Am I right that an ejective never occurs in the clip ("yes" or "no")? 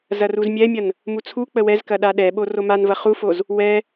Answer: yes